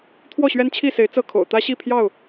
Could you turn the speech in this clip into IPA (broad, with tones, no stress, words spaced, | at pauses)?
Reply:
t̪ʰwɔ˥˨ɕɥɛ˦nt͡ɕʰi˥˨se˨˦ɪ̯ t͡sɤ˥˨kʰo̰˨˩ʊ̯ t̪ä˦ɕi˥˨pʰjɑ˥˨ʊ̯